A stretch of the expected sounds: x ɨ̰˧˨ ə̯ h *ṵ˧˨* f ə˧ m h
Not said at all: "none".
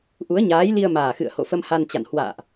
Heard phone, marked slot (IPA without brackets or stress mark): o̰˧˨